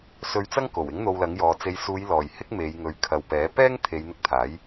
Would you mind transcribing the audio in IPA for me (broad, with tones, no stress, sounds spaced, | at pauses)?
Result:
s ɵ˧ ɥ t͡s ɐ˥ ŋ k o˨˩ w ɪ˨˥ ŋ n̪ o˧ w l ɐ˨˥ ŋ j ɔː˨˧ t͡s e˨˧ j s uː˨˧ j l ɔː˨˩ j h ɪ˥ k̚ m e˨˧ j ŋ ɵ˨˧ ɥ kʰ ɐ˨ w p ɛː˨˥ p ɛː˥ ŋ t̪ʰ e˨˧ j n̪ ɪ˧ k̚ t̪ʰ aː˨˥ j